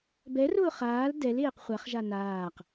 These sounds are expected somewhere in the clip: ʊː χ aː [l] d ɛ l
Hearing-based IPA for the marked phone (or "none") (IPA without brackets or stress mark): l